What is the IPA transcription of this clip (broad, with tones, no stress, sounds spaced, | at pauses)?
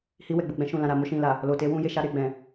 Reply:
h i˧ w ɛ˨ ɡ͡b u˨ ɡ͡b ɛ̃˧ ʃ ũ˨ l ã˨ ɾ a˨ m o˧ ʃ ĩ˨ l a˨ | l o˨ t e˧ w ũ˧ j e˨ ʃ a˧ ɾ e˨ ɡ͡b ɛ̃˨